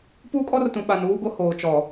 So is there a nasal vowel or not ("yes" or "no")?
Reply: yes